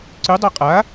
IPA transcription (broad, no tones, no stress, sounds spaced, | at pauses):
ǀ ʉ dˤ a qʼ a